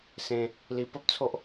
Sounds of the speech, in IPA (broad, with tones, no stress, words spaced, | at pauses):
sẽ˧ | li˧ pə˦p̚ t͡sʰo˦ʔ